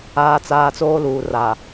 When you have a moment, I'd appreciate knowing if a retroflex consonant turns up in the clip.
no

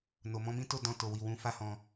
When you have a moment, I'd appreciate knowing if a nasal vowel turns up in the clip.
yes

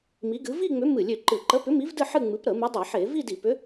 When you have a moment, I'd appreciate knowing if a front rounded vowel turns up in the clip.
yes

